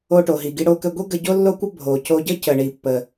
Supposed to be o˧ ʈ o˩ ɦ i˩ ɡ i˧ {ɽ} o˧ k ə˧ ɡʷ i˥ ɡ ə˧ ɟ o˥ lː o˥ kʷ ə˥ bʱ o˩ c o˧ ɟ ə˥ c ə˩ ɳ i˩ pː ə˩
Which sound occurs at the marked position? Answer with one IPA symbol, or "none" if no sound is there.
ɽ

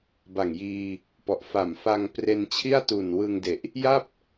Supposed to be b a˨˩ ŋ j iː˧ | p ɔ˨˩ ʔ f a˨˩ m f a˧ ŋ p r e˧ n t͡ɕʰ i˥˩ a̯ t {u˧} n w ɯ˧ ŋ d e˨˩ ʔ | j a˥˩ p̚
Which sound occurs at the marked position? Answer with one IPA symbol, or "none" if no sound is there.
u˨˩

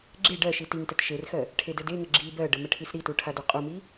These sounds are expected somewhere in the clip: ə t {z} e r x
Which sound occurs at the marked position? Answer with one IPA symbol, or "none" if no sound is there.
ʃ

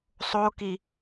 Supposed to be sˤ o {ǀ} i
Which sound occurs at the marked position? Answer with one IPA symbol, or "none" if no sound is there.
k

